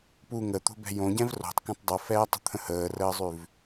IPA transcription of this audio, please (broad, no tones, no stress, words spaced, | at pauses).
pu ŋət̪o̤bɛ̤ jõɟɛ̃v ro̤tˤkɛ̃tˤ dˤofɛːtˤə̤t̪ʰə̃ həːrəːzˤʉv